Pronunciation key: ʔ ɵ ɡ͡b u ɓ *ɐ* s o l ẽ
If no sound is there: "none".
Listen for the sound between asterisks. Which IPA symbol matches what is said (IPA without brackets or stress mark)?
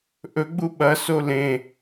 ɐ